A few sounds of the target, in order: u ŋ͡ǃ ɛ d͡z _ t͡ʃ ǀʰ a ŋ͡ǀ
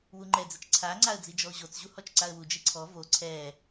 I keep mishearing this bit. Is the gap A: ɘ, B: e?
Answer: A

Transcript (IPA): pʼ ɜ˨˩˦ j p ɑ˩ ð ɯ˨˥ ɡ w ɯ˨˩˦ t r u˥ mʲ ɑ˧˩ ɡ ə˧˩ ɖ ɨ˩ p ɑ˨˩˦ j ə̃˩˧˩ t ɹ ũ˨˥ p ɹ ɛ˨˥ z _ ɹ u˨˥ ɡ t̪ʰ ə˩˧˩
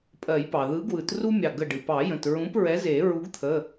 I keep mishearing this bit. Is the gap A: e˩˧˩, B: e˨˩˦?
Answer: B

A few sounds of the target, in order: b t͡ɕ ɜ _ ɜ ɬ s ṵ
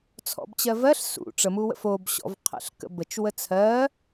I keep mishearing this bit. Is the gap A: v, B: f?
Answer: A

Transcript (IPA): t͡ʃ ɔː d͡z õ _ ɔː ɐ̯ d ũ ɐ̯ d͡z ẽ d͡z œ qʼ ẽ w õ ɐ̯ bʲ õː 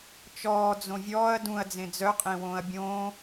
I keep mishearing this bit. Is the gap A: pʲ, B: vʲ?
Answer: B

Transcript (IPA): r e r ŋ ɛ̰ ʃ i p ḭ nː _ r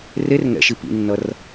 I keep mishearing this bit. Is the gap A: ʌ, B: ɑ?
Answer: A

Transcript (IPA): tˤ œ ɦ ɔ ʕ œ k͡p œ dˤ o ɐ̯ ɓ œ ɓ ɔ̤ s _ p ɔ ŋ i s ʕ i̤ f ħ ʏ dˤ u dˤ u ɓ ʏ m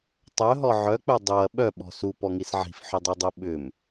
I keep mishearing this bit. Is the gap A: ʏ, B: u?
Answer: B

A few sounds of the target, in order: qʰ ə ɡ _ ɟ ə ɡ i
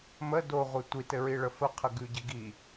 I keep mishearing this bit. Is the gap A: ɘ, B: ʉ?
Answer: B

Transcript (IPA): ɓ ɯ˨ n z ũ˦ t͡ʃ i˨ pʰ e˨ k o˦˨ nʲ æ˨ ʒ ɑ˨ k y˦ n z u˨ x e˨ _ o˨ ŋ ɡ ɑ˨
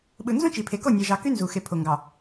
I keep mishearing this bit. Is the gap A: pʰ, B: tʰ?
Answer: A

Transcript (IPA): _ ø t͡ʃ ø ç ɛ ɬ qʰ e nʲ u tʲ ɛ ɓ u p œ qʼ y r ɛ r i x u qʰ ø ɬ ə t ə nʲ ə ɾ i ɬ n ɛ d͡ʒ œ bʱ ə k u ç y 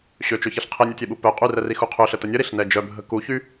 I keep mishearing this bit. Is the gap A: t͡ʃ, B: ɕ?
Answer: B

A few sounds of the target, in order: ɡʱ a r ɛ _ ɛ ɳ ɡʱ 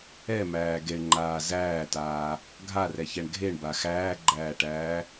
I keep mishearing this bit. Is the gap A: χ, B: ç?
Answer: B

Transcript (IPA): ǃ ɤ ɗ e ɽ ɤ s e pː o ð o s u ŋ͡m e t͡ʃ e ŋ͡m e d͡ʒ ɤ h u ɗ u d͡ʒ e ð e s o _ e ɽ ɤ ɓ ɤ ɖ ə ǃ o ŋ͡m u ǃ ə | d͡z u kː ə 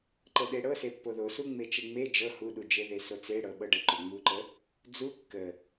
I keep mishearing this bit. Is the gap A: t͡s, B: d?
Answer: A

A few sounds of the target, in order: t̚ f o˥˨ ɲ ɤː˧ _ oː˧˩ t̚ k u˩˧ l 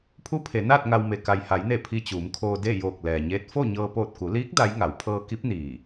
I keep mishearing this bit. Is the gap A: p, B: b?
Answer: A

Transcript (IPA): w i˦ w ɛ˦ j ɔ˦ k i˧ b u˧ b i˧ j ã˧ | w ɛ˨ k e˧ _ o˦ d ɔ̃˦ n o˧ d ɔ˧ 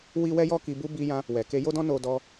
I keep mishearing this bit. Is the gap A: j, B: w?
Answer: A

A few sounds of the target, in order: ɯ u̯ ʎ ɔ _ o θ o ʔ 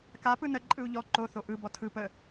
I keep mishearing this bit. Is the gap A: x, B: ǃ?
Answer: B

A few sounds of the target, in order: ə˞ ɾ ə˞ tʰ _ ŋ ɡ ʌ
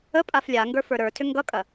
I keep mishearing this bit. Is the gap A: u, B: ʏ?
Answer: B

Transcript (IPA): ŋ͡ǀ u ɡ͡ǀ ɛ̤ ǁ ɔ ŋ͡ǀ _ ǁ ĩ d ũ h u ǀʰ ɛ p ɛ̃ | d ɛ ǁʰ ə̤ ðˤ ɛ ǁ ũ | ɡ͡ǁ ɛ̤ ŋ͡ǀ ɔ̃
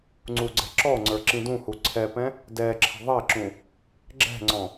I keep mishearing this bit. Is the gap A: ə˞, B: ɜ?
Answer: A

